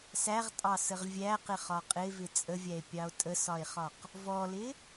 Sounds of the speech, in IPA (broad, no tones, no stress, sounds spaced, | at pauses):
s æ ʁ tʼ ɑ s ə ʁ vʲ æ q ɪ χ ɒ qʼ ɪ v ɪ t͡sʼ ə vʲ æ e̯ pʲ ɑ o̯ tʼ ə s ɒ e̯ χ ɒ q | v ɔ l ɪ